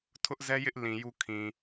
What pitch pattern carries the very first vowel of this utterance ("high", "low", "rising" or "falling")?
high